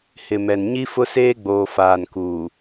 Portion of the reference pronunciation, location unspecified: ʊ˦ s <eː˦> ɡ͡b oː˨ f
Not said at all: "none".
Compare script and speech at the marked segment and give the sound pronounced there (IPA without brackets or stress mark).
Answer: eː˦